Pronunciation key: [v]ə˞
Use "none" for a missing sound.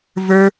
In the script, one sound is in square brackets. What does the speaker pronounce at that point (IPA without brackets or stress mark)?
v